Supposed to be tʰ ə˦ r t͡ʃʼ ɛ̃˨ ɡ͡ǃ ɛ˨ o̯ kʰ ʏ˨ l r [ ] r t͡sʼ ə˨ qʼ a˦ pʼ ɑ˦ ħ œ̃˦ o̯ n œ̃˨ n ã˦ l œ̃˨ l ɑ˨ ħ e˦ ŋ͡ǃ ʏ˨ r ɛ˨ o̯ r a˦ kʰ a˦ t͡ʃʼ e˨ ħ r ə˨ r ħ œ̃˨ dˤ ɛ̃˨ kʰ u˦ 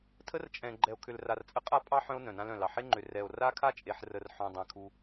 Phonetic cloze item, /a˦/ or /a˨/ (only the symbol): a˨